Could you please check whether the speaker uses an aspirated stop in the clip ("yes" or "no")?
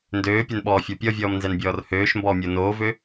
no